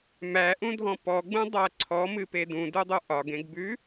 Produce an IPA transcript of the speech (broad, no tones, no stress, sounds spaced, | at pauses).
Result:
m æ ʔ ũ dʱ ɔ̃ p ɔ ɡ͡b ũ dˤ æ ǀʰ ɔ m ɨ p e d ũ d u dˤ u ʔ ɒ ɡ ẽ ɡ b ʉ